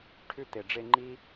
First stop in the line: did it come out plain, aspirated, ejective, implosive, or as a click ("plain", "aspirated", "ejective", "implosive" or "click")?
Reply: aspirated